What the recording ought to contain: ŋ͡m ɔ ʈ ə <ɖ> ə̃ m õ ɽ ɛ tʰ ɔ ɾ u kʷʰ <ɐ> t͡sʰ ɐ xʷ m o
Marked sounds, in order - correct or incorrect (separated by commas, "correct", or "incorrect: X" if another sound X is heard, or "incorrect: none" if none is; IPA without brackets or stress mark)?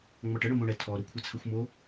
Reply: incorrect: ɽ, incorrect: a